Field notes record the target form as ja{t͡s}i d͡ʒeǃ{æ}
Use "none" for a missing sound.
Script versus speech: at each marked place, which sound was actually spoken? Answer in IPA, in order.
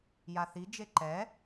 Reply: θ, ɛ

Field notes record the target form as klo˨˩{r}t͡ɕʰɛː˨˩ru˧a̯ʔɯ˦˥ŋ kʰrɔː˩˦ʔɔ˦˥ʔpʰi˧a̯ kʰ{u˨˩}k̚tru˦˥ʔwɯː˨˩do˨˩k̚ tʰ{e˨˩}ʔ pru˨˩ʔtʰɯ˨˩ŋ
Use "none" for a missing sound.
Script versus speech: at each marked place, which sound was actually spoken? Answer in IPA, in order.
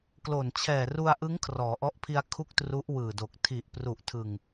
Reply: n, u˥˩, i˨˩

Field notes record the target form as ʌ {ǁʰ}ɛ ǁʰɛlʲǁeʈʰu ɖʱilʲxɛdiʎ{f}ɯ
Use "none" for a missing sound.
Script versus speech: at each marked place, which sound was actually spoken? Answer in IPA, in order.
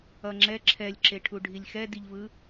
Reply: ŋ͡ǁ, v

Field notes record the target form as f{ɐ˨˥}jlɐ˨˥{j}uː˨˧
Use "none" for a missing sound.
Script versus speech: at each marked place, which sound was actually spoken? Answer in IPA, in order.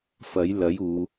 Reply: ɐ˨˥, j

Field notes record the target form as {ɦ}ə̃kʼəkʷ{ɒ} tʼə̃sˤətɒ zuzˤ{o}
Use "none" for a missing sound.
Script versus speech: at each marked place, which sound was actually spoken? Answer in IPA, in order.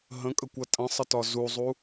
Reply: ɦ, ʌ, u

